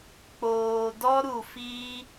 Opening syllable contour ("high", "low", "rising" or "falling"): low